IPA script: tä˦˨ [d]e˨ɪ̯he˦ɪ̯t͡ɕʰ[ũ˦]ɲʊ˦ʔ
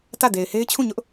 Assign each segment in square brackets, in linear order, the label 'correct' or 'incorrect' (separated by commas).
correct, incorrect